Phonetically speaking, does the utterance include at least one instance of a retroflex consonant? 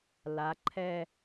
no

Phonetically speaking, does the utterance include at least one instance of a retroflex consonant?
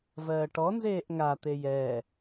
yes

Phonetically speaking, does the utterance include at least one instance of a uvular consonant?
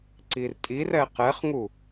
yes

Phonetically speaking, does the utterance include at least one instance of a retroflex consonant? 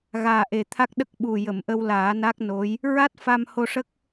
yes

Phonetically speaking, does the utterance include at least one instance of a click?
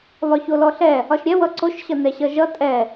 yes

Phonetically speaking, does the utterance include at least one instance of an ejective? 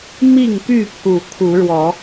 no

